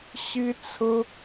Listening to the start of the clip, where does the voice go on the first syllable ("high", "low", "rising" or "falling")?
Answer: high